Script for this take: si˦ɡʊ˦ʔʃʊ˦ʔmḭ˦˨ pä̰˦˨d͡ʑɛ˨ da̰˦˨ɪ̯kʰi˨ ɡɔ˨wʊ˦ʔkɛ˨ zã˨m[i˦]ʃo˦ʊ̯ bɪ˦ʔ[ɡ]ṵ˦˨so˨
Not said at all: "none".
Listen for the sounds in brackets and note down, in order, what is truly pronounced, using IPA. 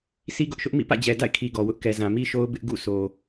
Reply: i˦, ɡ

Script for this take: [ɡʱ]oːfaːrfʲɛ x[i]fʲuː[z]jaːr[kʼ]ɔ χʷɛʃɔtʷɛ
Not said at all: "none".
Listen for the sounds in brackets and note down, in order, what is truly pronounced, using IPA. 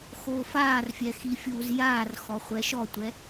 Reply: x, i, z, x

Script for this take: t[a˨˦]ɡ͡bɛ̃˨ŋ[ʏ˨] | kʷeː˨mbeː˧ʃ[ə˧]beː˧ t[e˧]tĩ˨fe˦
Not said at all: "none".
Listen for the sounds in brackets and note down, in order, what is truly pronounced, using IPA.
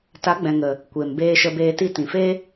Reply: a˨˦, ə˨, ə˧, i˧

